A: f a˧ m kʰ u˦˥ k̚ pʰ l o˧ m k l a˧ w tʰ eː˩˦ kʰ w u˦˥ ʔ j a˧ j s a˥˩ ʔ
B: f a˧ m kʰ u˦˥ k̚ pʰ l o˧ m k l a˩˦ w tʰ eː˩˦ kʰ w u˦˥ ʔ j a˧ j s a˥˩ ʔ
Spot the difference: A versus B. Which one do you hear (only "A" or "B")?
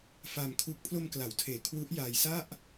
B